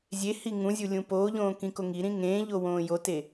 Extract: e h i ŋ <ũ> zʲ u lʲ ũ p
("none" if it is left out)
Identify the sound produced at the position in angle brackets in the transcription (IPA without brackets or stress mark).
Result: ũ